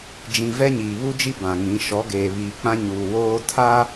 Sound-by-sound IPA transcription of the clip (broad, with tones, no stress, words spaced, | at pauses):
d͡ʒĩ˨ vɛ˦ɲiː˨βu˦d͡ʒi˦ bã˨ŋĩ˨˦ ʃɔ˨˦ɡeː˨ βiː˨k͡pã˦ɲuː˨ woː˦ tʰa˦